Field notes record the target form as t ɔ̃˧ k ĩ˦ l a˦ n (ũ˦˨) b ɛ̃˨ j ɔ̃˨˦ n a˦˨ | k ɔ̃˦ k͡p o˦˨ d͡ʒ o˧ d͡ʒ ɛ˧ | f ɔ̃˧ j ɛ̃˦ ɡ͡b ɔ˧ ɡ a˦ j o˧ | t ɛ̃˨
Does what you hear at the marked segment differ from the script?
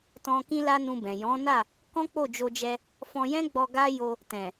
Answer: yes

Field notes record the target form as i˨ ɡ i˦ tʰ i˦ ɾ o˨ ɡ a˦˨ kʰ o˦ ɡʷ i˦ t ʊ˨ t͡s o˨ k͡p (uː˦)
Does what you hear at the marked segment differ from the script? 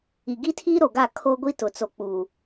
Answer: yes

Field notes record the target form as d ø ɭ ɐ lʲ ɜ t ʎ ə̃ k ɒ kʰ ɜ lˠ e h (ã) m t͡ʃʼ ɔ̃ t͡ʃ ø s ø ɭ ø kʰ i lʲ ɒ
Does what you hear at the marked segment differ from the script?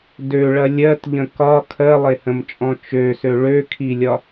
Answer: yes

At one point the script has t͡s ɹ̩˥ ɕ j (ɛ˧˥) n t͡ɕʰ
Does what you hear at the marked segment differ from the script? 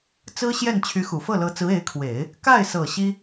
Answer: yes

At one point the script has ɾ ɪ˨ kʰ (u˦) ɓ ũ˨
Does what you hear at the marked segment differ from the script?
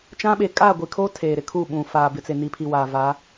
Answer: yes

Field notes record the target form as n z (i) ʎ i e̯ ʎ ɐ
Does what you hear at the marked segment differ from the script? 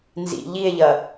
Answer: yes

